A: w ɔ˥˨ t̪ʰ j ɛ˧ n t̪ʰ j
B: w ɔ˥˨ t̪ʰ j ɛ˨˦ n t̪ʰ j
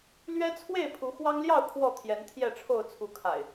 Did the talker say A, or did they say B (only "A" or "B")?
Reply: B